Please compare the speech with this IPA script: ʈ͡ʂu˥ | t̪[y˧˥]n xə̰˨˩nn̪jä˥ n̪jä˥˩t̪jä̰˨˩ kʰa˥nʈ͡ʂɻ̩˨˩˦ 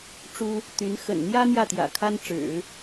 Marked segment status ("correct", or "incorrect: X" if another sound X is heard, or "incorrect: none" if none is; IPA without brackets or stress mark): correct